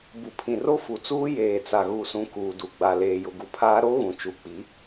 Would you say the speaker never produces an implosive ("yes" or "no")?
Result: yes